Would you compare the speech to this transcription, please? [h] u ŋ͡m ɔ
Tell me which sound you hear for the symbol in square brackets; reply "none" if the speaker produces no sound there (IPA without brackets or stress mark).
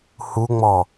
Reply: h